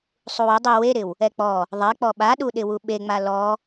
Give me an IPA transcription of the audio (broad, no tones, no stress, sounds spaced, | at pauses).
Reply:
sˤ u w ɪ dˤ i w e ɾ ɪ w | ɛ k͡p ɔ | ðˤ ɛ k͡p ɔ ɓ a ɗ u ɗ ɪ w u ɓ e ŋ͡m a l ɔ